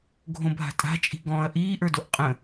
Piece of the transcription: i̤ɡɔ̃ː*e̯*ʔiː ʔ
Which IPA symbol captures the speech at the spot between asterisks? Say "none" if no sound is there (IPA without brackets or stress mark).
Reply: ɐ̯